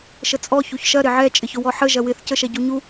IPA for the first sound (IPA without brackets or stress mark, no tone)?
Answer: ʃ